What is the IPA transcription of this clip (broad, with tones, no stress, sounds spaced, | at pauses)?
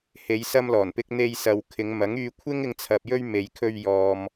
h e˨˧ j s ɐ˧ m l ɔː˨˩ n p ɪ˧ k̚ n̪ e˧ j s ɐ˨ w kʰ ɪ˨˧ ŋ m ɐ˨˥ ŋ yː˧ kʷʰ ɪ˥ ŋ ɪ˨ ŋ t͡sʰ ɐ˨ p̚ j ɵ˧ ɥ m e˨ j kʰ ɵ˧ ɥ j ɔː˨ m